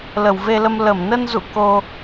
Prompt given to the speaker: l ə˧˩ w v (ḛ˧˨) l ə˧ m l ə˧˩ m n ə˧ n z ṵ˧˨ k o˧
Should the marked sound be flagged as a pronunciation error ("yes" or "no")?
yes